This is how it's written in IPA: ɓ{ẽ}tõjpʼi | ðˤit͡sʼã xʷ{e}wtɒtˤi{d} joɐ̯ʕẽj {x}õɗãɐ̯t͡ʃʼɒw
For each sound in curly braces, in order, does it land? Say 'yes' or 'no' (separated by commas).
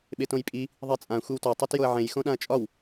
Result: no, no, no, yes